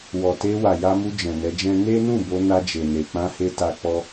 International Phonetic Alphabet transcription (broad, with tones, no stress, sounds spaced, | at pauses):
w ɔ˨ t e˧ w a˨ j a˧ m u˧ d͡ʒ ɛ̃˨ n ɛ˨˦ d͡ʒ ɛ̃˦ n e˦ n ũ˦˨ b o˧ n a˧ d͡ʒ e˨ n e˨ k͡p ã˧ h e˧ t a˧ k͡p ɔ˧